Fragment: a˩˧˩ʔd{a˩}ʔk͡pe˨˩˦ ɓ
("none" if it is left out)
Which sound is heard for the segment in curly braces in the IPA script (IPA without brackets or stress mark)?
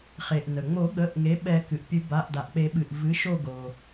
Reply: a˩